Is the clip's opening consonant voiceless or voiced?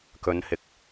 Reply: voiceless